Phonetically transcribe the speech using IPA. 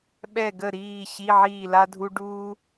ɓ ɛ˥˨ ɡ ə˥˨ ɾ iː˥˨ ɕ i˧˥˧ ʕ iː˥˨ l a˥ dʱ u˥ ɖ uː˥

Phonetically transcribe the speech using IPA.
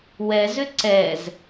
w ɛ z ʏ ǀ ɛ z

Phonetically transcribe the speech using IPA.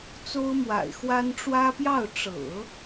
t͡s o˥ ʊ̯ m w a̰˨˩ ɪ̯ x w a˥ n ʈ͡ʂ w ä˥ p j ɑ˥˩ ʊ̯ ʈ͡ʂ ɤ̰˨˩˦

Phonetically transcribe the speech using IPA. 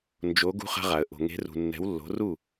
n d͡ʒ o˨˦ ɡ ṳ˦ χ a̤˦ ʁ a˨ ə̯ ʔ o̤˨ ŋ e̤˨˦ r ṳ˨ nː ɛ̤˨˦ w lː o̤˨˦ r u˥˨

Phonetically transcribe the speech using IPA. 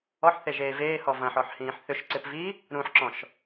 ɔ ħ θ e ʒ eː v eː h ɔ v ɐ̃ ħ ɔ ħ h ĩː ħ θ ʏ ʃ ǀ ɪ p v i | ɾ ũ ħ ǁ ɔ̃ ʃ

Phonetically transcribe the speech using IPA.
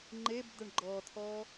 ŋ͡ǃ e b d̪ ə ɳ ɡ͡ǃ ɔ t̪ʰ ɔ

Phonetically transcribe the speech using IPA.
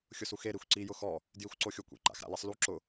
xʲ ʊ s u x e ɾ i xʷ ǀ i j ʊ x ɔ | d j i xʷ ǀ o xʲ o kʷ ḛ ǃ a̰ x ɾ a̰ l i sˤ l u ǁ ʊ

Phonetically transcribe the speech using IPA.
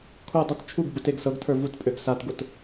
kʰ u dˤ o t t͡ʃʰ u ɡ b u t e ɡ s ɤ ɡ tʰ ə˞ v u t pʼ ø ɡ s a t ɡ o t

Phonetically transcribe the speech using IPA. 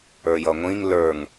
ə˞ j ʌ ŋʷ ĩ ŋ l ə˞ ŋ

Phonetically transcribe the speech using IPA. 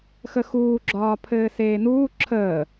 x ə x uː ɡ͡ǁ ɒː pʰ ɘː s eː n uː ǁʰ əː

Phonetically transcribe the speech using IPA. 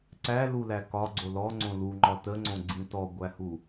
ǀ æ l u l æ k ɒ ɡ͡ǀ o l ɔ ŋ͡ǀ õ l u ŋ͡ǃ ɒ t ə ŋ͡ǀ õ ɡ͡ǀ ĩ t ɔ ɡʷ æ h u

